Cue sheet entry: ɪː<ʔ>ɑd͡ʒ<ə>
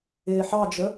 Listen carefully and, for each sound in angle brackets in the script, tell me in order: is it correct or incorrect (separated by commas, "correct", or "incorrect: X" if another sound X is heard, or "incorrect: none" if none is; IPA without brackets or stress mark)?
incorrect: ħ, correct